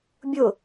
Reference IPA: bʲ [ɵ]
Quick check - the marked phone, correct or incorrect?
incorrect